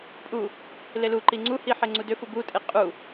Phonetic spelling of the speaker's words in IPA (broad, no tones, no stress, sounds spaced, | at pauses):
pʼ u | l e l u ǃ i ŋ͡ǀ u h i ħ e ŋ͡ǀ u d ʏ f u b u tʼ e qʼ u